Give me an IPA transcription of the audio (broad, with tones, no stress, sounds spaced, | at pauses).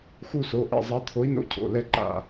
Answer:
x u˦˨ s o˩˧˩ ʔ ɛ̰˦˨ zˤ a˨˥ t̪ʰ o˨˥ i̯ n o̰˧˥˧ cʰ o̰˩˧˩ l ɛ˦˨ ǃ a̰˦˨